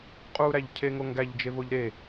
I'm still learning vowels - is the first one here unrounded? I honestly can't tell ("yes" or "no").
no